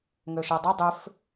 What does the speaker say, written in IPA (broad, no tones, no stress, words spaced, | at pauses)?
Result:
ŋøʃœdˤɯ dˤʏf